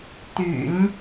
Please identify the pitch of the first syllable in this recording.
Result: low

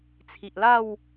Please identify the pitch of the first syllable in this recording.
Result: low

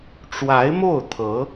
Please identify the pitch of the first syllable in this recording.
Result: rising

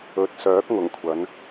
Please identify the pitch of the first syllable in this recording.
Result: low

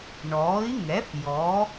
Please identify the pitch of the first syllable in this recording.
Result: rising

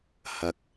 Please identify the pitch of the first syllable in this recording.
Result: low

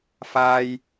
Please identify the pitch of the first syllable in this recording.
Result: high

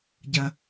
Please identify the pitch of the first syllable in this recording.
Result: low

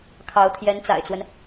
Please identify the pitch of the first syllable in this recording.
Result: rising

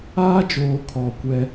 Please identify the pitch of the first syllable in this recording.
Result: high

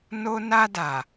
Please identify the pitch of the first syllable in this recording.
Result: high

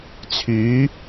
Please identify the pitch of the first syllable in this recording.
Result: rising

